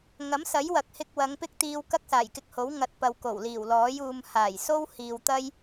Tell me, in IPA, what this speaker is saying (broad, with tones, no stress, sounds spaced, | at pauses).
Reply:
ŋ ɐ˨˥ m s ɐ˨˥ j w ɐ˨ k̚ h ɪ˧ k̚ w ɐ˨˧ ŋ p ɪ˥ k̚ t̪ iː˧ w k ɐ˥ k̚ s aː˨˩ j k ɪ˧ k̚ h o˨˥ w ŋ ɐ˧ t̚ p ɐ˨ w k o˨˩ w l iː˨˩ w l ɔː˨˥ j uː˧ m h aː˨˩ j s o˥ w h iː˨ w t̪ ɐ˥ j